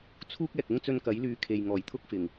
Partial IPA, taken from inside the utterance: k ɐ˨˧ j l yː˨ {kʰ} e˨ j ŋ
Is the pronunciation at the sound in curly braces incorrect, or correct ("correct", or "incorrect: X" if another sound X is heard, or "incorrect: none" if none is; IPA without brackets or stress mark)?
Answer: correct